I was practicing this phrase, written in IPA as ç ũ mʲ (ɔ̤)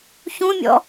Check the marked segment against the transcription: incorrect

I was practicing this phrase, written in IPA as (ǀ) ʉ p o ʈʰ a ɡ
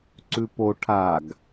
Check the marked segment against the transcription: correct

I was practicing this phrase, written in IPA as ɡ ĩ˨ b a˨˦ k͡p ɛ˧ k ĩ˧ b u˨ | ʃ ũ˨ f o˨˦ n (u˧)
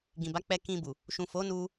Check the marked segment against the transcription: correct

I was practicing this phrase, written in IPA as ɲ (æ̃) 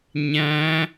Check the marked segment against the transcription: correct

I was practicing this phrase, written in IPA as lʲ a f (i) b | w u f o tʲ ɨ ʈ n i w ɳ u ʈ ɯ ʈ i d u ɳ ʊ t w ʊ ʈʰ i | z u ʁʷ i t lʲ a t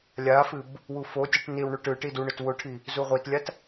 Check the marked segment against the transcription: incorrect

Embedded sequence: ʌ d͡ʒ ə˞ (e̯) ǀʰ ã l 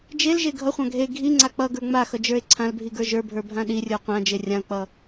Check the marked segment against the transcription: correct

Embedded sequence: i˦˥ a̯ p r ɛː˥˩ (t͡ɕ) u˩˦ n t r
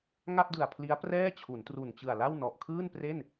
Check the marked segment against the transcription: incorrect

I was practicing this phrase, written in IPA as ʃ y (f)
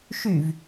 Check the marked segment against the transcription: incorrect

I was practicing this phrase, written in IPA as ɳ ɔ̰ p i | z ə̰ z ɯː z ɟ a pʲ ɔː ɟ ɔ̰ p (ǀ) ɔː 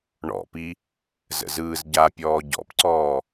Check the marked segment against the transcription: correct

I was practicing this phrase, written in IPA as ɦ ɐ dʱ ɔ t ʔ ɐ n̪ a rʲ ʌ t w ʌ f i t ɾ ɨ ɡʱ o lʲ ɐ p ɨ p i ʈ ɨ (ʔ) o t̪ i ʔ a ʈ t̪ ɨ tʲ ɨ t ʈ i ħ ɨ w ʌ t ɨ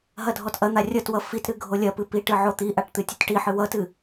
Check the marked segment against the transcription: incorrect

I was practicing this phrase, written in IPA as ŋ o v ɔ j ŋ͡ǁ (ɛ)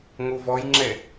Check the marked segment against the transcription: correct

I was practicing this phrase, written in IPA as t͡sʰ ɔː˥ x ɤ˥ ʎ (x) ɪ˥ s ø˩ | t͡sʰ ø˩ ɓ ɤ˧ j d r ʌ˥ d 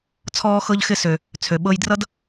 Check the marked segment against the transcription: correct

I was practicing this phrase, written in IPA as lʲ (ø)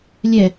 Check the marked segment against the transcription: incorrect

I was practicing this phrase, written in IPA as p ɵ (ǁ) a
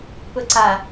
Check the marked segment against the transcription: incorrect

